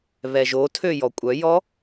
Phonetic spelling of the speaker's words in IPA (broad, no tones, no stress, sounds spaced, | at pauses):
β ɛ ʒ o tʰ ø j ɔ kʷʼ œ j ɔ